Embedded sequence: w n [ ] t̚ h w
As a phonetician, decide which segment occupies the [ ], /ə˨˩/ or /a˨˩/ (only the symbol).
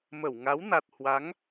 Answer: a˨˩